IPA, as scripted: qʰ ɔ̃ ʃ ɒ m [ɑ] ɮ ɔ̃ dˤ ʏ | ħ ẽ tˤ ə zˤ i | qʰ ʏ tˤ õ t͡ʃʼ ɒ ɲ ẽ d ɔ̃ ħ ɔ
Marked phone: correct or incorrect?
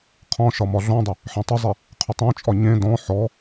incorrect